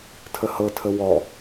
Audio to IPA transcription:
tʰ ə h ɤ tʰ ə w ɔ

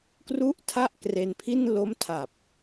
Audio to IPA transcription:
k r u˥˩ ʔ tʰ a˥˩ ʔ k r e˧ n pʰ i˥˩ n l o˦˥ m tʰ a˨˩ p̚

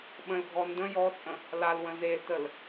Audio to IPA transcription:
ɓ ə̃ l ɡʱ ɔ n d ə̃ j ɔ t͡sʼ ə̃ | l a l w ə̃ z e l t ə l

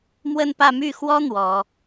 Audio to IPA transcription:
m w ə˥˧ n p ä˥˧ m y˥˩ x w ɔ˥ n̪ w ɔ˨˩˦

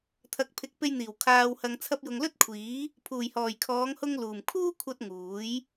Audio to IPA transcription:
t̪ʰ ɐ˨ k̚ pʰ ɪ˨˥ k̚ p e˧ j n̪ iː˨˩ w kʰ aː˨ w h ɐ˨ ŋ t͡sʰ ɐ˧ p̚ j ʊ˨ ŋ l ɵ˥ t̚ kʷʰ iː˨˥ | pʰ uː˨˩ j h ɔː˨˩ j kʰ ɔː˨˧ ŋ h ʊ˧ ŋ l uː˨˩ m kʰ uː˥ kʷʰ ɐ˧ t̚ ŋ uː˨˥ j

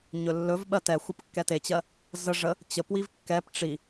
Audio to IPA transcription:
ɲ ɵ lː ɵ v ɓ ɜ t ɛ xʷ ə p kː ɛ t e t͡ɕ ɜ | z ə ʐ ə | t͡ɕ ə p w i v kː ɛ p ʈ͡ʂ i

